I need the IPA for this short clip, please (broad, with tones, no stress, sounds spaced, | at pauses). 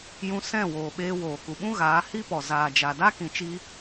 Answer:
j ũ˧ s ɛ̃˦˨ w oː˨ ɓ eː˧ w oː˨ k u˨ ɓ ũ˦ ɣ aː˨˦ h i˦ p ɔ˨ z aː˨ d͡ʒ a˨ d a˦ k ĩ˨ t͡ʃ i˧